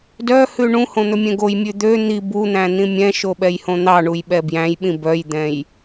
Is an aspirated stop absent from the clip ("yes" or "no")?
yes